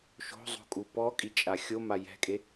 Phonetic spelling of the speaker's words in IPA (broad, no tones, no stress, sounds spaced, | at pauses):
ʃ o̤ zˤ o̤ kʼ u p ɔ kʼ i t͡ʃʼ a xʲ o m a j ɛ̤ kʼ e